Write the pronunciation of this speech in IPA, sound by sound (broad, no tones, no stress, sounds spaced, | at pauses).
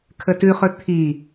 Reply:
kʰ ə t ʉ χ ɵ t̪ʰ i